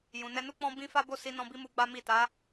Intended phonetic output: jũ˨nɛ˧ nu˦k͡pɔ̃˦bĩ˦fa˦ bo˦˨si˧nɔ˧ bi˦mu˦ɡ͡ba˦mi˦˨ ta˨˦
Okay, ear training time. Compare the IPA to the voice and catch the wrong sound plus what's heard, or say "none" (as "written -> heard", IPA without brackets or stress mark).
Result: ɔ˧ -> ɔ̃˧